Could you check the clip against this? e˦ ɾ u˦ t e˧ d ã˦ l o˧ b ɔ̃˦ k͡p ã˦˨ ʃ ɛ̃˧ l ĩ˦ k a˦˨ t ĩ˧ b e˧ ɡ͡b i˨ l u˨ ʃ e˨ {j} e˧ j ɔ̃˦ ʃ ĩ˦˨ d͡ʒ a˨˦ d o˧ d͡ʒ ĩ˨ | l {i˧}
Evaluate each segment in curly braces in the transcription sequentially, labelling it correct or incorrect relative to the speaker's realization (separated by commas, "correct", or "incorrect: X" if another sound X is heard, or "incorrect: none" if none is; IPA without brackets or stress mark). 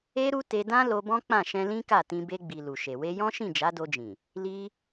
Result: incorrect: w, correct